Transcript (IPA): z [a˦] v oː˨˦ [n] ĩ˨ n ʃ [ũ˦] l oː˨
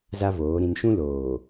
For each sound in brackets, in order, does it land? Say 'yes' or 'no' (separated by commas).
yes, no, yes